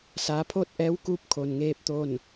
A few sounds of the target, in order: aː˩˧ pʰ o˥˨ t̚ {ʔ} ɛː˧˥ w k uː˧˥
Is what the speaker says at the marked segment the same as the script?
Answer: yes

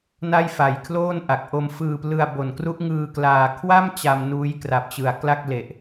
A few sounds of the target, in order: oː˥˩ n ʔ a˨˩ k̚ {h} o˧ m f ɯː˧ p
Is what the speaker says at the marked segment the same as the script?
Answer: no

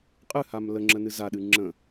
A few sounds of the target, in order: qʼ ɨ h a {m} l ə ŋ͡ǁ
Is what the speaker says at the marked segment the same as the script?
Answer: yes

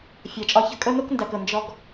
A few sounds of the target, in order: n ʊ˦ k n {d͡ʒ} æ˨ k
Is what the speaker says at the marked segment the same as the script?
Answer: no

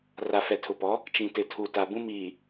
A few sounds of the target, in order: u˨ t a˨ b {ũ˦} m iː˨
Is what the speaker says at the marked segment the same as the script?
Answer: yes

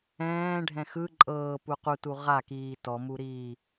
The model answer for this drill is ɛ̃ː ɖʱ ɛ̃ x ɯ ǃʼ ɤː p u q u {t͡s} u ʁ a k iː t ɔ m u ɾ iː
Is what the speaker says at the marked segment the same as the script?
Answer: no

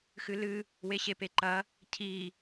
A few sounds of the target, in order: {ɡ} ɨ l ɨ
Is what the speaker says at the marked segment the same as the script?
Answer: no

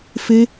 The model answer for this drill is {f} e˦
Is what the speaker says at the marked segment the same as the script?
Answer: yes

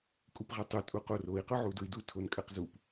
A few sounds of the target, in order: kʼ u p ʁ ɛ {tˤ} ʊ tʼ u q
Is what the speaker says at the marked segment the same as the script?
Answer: yes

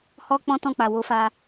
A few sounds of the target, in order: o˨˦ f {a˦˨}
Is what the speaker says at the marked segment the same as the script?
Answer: no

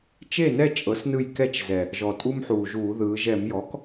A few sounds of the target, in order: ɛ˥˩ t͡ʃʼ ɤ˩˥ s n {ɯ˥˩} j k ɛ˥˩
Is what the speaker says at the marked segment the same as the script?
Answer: yes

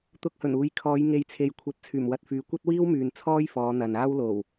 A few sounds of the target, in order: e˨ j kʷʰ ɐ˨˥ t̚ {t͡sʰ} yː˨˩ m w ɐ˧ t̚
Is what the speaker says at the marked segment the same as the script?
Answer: yes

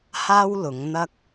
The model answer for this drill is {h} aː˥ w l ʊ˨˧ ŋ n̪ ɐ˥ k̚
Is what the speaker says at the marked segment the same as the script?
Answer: yes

